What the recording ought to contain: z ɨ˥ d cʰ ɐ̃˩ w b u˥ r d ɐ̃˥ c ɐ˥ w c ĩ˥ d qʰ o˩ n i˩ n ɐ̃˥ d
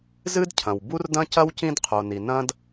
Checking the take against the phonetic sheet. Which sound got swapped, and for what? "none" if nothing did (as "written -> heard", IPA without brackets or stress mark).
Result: none